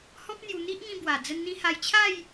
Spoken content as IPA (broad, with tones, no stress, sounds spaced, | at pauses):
h ɔ̃˦ p̚ n̪ j u˧ n̪ i˦ ʔ ŋ ĩ˧ b w a˨˩ d͡z ə˧ n n̪ ĩ˧ h a˧ j t͡ɕʰ a˥˧ j